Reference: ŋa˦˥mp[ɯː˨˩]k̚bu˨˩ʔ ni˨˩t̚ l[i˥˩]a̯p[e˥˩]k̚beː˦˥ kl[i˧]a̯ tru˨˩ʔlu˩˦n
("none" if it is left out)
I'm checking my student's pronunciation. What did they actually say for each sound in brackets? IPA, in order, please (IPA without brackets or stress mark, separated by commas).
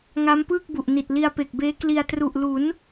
ɯː˥˩, i˧, e˨˩, i˧